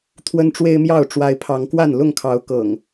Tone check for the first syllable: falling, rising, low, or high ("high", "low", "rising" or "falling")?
high